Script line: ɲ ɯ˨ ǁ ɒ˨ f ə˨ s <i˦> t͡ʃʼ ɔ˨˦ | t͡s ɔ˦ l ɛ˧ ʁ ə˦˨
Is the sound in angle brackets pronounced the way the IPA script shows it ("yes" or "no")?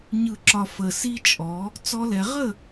yes